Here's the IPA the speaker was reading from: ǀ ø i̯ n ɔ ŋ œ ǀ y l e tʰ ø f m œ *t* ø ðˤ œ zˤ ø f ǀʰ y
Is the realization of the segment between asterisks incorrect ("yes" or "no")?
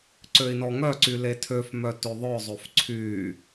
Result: no